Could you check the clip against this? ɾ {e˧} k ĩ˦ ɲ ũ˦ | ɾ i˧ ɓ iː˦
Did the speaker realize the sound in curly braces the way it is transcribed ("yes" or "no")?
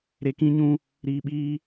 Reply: yes